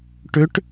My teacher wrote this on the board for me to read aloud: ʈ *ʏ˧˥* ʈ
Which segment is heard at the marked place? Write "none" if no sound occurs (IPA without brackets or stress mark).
ʏ˧˥